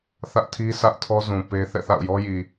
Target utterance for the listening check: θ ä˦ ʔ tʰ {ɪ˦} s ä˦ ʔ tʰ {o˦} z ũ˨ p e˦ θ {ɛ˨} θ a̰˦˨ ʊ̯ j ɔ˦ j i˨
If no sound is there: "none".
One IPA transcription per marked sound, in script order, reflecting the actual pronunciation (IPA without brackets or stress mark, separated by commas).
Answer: i˦, ɔ˦, ɛ̰˦˨